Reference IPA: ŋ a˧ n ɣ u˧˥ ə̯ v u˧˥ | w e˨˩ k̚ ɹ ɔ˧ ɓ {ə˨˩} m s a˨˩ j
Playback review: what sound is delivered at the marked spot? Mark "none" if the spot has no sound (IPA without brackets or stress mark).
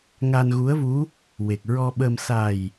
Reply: ə˧